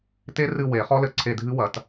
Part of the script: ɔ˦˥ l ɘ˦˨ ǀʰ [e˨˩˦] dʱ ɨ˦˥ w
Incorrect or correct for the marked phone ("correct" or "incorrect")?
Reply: incorrect